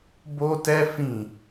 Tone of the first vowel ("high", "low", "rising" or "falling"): high